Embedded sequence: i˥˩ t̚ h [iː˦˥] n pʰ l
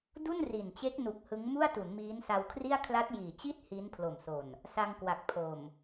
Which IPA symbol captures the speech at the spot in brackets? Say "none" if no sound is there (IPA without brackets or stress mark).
iː˦˥